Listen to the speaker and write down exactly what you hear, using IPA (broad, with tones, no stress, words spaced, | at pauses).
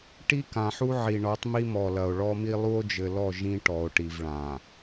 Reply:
ʈi˦kã˨ħu˦ ʕi˨ɳɔ˨˦tˤmi˦ mɔ˨lɐ˨o̯ɭɔ˦mi˦ lˠu˦o̯d͡ʒɘ˨lɔ˦˨ ʒĩ˦ ʈɔ˨o̯ʈi˨v ɭã˨